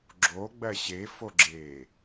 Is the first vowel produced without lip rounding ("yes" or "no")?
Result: no